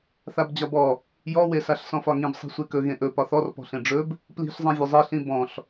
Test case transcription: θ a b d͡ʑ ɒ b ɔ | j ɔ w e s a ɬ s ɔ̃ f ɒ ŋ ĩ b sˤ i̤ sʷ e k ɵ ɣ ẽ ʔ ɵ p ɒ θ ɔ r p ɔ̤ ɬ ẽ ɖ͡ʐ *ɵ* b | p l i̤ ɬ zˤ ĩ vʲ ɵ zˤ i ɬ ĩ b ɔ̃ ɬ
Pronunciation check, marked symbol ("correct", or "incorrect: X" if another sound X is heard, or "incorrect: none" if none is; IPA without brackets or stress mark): correct